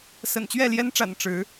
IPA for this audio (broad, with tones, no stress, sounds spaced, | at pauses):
s ə̰˨˩ n t͡ɕ ɥ ɛ˥˨ l j ɛ˦ n ʈ͡ʂ a̰˨˩ n ʈ͡ʂ ɻ̩˨˦